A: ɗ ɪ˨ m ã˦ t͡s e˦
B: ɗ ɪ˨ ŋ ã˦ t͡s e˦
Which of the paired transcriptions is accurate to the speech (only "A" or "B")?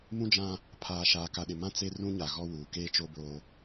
A